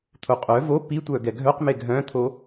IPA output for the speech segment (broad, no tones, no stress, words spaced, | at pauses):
t̪ʰoqʼœ vo pitʷœ ɡɛɡʱœqme ɡʱœ̃t̪ʰo